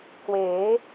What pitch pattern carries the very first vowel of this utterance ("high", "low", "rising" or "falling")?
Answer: rising